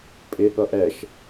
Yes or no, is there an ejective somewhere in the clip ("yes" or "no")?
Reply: yes